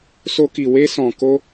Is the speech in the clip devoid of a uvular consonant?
yes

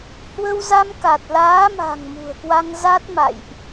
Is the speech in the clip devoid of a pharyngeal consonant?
yes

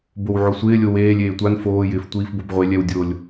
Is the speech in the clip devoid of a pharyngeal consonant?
no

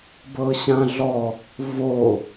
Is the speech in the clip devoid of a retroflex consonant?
yes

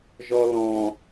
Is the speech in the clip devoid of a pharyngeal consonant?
yes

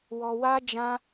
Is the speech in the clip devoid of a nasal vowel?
no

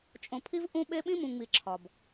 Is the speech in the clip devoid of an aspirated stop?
no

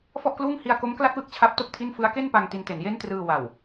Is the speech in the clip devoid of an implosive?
yes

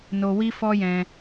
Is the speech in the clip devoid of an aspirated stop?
yes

